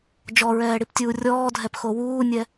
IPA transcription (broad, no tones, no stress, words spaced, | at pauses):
d͡ʒɔɹɛːɽiptʲuː rʲɔːdʱɛpxo wuːnʲɛ